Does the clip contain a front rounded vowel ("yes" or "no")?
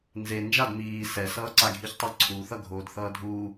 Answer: no